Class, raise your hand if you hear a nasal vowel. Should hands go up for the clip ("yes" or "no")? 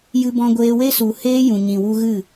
yes